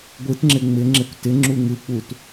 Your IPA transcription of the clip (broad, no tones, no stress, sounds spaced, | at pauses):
ɡʷ ɯ t ŋ͡ǁ ɪ ŋ͡m ɪ ŋ͡ǁ ɪ kʷ t ɪ ŋ͡ǁ u ŋ ɯ k͡p u t